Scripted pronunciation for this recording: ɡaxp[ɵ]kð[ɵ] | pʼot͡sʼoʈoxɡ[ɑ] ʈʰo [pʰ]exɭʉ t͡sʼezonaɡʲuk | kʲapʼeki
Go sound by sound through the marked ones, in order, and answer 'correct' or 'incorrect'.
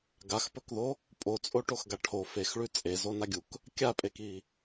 correct, incorrect: o, incorrect: a, incorrect: f

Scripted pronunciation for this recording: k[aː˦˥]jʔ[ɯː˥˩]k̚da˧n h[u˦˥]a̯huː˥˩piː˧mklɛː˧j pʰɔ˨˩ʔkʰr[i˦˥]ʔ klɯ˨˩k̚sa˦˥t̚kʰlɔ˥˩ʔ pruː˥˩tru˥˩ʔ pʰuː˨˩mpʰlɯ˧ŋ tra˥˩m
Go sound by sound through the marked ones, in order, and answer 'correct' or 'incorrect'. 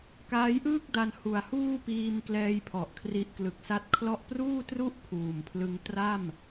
correct, correct, incorrect: u˨˩, correct

